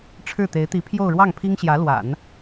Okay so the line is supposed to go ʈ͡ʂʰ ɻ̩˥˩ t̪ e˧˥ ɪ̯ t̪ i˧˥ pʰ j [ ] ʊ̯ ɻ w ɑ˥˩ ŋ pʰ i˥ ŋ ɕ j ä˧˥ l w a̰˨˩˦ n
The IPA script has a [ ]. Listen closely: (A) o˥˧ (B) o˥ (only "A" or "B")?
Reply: A